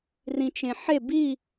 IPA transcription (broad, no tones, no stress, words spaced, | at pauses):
rĩt͡ʃẽħe bi